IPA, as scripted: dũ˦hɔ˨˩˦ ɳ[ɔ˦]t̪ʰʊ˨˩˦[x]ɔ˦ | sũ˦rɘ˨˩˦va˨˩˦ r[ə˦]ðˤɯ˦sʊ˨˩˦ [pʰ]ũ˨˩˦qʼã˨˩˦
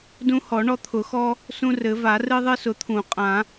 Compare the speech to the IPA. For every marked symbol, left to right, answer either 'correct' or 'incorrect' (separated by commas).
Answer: correct, correct, incorrect, incorrect